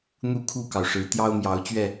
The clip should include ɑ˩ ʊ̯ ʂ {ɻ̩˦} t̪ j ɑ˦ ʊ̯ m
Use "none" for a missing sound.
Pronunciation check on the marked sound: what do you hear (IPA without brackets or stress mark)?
ɻ̩˨˦